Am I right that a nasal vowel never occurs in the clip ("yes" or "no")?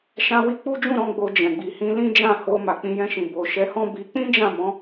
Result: no